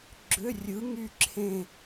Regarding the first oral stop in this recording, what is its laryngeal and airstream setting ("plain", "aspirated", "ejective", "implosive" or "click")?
click